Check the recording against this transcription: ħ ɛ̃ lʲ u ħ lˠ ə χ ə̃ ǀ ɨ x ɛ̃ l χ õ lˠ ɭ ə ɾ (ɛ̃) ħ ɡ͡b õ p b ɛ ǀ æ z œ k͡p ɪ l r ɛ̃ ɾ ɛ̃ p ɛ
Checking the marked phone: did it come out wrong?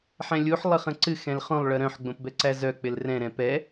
yes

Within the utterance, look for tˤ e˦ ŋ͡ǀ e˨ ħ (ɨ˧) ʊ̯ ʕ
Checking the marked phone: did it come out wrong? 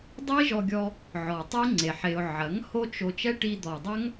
yes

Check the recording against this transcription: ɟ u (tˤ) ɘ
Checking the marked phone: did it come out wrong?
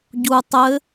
no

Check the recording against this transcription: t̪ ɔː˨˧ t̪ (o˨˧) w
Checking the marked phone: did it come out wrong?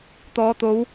no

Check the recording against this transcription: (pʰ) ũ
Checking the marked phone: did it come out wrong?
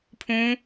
no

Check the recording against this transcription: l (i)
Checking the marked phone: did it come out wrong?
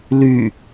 yes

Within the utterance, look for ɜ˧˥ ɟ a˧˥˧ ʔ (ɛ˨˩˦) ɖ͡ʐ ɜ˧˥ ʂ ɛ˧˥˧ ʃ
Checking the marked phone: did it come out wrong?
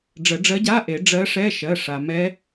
yes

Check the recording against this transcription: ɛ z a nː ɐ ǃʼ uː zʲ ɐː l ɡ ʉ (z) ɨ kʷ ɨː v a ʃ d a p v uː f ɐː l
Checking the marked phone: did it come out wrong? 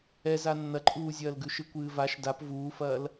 yes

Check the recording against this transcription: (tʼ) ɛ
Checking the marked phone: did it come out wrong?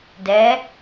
yes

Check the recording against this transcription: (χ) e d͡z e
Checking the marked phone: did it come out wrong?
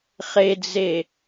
no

